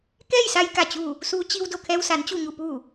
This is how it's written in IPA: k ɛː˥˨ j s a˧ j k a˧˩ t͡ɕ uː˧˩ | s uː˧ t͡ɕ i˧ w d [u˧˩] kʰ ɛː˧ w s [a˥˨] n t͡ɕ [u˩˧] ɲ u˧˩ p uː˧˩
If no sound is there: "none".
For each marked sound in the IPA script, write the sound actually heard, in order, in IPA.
o˧˩, a˩˧, u˧˩

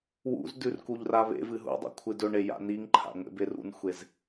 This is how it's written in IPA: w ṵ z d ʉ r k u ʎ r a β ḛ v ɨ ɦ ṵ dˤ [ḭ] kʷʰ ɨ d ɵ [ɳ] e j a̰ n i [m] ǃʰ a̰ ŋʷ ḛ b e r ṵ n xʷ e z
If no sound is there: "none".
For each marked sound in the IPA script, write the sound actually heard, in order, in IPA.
ḭ, ɳ, ŋ

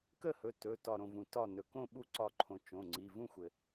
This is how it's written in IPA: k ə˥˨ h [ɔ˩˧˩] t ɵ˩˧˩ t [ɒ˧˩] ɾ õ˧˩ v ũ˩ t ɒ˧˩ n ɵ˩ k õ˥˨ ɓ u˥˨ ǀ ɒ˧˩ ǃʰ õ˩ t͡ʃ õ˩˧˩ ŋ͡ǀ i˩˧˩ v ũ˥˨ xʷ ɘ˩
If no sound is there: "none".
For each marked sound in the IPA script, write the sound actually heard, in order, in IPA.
ɵ˩˧˩, ɒ˧˩

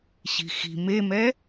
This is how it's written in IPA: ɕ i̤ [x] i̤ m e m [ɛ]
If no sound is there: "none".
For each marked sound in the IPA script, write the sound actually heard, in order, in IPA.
x, ɛ

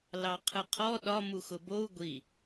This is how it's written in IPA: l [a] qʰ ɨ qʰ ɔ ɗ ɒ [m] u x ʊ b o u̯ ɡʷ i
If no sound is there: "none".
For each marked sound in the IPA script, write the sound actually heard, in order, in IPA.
ɑ, m

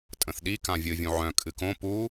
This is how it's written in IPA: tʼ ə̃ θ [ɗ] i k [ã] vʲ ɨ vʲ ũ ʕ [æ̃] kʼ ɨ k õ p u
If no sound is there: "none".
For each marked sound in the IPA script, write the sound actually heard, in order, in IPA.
ɗ, ã, œ̃

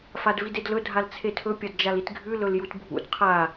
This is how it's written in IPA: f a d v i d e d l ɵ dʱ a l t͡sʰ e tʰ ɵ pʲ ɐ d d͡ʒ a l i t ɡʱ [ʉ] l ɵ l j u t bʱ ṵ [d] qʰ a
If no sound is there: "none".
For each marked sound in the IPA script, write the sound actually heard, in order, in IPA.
ʉ, d

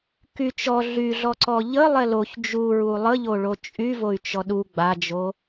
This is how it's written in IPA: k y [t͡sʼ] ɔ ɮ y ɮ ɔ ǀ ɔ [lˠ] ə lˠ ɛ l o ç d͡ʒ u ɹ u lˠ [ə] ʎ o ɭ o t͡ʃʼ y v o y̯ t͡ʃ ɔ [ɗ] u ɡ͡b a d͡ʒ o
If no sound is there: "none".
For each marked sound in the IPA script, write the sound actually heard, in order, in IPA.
t͡ʃ, ʎ, ə, ɗ

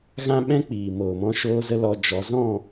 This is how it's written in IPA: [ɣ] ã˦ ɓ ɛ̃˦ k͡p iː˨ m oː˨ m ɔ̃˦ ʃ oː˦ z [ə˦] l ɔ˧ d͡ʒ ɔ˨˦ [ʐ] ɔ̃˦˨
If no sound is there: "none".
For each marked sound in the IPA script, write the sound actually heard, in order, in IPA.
ɣ, ə˦, z

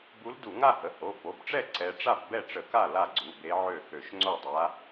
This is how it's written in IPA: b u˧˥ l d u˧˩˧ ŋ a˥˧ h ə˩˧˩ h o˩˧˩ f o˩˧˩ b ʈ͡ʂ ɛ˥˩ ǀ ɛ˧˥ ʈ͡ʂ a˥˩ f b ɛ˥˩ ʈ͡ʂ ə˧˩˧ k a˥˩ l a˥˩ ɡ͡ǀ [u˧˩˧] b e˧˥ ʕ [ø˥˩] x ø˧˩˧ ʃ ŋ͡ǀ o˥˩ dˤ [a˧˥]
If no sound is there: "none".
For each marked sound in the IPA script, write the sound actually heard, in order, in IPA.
u˩˧˩, ø˥˩, a˧˥

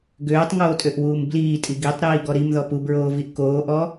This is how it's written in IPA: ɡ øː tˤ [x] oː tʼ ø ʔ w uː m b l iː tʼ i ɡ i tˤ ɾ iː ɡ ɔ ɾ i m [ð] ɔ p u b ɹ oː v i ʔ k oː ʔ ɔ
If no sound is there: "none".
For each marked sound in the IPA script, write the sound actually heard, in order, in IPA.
ŋ, ð

